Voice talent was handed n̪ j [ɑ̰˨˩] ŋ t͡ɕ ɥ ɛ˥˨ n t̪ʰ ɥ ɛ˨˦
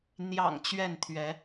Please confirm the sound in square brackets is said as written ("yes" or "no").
yes